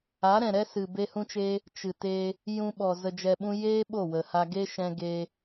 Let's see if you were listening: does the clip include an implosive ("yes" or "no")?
yes